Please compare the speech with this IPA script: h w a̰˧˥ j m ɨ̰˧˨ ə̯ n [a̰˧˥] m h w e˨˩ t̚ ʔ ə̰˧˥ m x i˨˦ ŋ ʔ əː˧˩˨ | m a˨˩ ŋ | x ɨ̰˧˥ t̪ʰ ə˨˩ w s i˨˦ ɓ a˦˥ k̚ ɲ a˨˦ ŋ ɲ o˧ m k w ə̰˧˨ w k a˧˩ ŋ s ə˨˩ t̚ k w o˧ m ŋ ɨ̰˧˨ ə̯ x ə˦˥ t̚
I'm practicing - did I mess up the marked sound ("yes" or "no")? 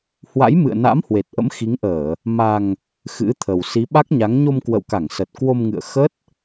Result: no